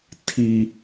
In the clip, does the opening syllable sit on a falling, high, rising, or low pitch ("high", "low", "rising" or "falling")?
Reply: low